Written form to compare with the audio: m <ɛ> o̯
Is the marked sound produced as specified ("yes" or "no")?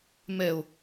yes